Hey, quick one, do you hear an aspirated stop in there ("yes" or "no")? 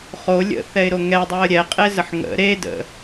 no